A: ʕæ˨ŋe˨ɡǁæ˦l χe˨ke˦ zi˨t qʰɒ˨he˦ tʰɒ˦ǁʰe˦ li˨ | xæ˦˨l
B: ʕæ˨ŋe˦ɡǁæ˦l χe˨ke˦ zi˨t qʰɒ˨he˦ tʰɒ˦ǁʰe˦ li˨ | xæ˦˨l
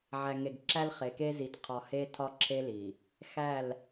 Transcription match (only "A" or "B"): A